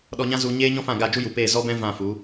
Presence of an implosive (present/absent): present